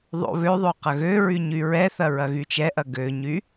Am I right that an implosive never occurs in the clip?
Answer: yes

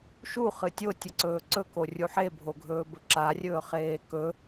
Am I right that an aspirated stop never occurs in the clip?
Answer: yes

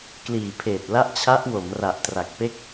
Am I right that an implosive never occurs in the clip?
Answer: yes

